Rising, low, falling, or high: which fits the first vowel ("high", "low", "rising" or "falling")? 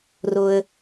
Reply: low